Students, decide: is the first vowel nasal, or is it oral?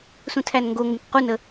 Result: nasal